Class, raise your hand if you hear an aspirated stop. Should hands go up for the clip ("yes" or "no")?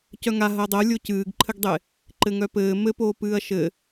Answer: yes